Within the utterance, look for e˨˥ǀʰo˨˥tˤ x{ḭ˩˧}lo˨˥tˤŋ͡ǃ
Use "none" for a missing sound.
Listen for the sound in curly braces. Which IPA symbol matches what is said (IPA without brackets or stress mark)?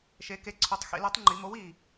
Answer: ḭ˩˧